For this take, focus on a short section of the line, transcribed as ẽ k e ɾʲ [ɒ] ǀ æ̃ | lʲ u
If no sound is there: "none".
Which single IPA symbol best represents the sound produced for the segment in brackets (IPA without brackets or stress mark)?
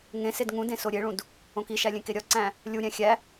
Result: ɒ